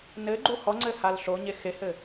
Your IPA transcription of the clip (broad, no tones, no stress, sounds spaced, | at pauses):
n ɘ ɡ͡ǃ u h ɔ ŋ͡ǀ ɘ h a l ɬ o ɲ e x e h ɘ